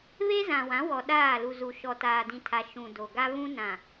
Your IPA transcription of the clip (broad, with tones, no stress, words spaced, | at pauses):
βe˦zã˨wã˨˦ wɔ˨ ɗaː˦˨lu˨zu˨ ʃɔ˨taː˨dĩ˨tʰa˨ ʃũ˨do˨ɡa˦ βũ˦ nã˨